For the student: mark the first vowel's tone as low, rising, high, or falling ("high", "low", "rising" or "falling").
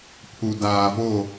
low